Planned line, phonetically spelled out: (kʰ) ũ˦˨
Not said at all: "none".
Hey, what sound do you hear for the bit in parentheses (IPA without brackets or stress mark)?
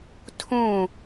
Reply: tʰ